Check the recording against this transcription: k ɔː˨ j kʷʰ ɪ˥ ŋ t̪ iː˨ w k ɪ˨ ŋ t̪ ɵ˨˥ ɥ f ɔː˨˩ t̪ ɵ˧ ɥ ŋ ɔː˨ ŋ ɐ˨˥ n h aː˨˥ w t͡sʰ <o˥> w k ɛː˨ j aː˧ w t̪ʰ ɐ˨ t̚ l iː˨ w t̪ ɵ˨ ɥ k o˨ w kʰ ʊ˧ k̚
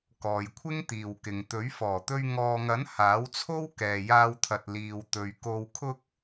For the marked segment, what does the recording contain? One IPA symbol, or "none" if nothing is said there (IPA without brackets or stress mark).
o˥